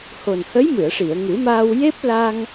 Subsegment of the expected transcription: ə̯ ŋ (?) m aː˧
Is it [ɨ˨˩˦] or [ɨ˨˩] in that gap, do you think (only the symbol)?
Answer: ɨ˨˩˦